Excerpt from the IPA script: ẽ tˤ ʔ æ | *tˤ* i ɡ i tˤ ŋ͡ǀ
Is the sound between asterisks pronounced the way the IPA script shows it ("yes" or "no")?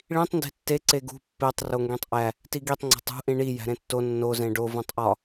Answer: no